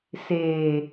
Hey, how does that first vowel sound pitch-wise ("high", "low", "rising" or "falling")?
low